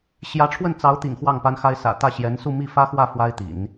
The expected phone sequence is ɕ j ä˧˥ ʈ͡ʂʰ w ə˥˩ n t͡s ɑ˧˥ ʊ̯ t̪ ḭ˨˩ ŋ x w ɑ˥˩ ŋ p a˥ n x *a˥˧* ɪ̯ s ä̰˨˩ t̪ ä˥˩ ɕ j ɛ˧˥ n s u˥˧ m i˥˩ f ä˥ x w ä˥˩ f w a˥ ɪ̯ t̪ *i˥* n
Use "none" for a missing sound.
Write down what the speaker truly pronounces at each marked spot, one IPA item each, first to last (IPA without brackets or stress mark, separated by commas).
a˥, ḭ˨˩˦